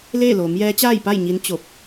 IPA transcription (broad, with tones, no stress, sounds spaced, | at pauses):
l eː˥˨ l oː˩˧ m j ɛː˧˥ t͡ɕ aː˥˨ j p a˥˨ j ɲ i˧˥ n t͡ɕ o˧˩ p̚